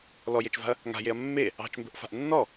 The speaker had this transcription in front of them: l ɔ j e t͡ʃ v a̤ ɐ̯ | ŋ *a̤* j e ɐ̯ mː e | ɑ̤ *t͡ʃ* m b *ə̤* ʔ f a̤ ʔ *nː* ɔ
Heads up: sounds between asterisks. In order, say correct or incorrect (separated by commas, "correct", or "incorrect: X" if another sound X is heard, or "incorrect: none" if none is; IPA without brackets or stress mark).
correct, correct, correct, correct